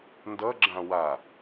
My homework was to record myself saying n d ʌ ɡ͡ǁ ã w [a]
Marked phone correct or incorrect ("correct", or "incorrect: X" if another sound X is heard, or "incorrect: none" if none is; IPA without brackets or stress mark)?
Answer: correct